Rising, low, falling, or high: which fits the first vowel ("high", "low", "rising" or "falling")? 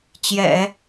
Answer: low